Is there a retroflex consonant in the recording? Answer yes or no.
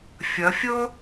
no